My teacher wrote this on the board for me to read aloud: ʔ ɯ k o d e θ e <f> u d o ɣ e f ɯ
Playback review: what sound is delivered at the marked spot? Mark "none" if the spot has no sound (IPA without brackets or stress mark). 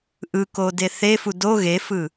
f